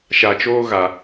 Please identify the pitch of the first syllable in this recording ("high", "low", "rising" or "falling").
low